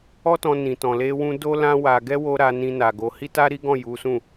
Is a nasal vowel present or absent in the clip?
present